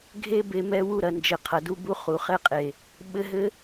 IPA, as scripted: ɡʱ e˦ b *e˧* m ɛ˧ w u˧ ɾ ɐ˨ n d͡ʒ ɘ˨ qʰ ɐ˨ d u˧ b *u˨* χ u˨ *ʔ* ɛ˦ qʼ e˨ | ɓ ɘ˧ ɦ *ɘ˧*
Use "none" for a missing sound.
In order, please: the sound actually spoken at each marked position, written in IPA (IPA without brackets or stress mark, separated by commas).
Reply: e˧, u˧, χ, ɘ˦